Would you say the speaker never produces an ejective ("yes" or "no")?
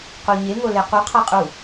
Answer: no